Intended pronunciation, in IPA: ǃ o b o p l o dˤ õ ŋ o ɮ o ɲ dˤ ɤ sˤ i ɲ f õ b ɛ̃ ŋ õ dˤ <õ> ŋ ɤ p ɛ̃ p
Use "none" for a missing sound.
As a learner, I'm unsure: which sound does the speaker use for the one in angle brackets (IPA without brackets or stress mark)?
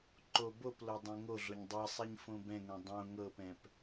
õ